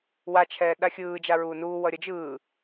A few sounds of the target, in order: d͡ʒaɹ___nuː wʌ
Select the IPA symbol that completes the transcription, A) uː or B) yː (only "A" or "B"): A